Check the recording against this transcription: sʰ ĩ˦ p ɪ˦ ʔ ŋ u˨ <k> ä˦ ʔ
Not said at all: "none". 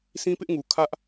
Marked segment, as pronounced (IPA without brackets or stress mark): kʰ